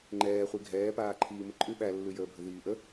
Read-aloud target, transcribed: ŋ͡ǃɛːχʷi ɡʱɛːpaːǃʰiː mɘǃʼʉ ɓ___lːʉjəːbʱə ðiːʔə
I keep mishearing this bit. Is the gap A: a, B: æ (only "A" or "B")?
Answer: B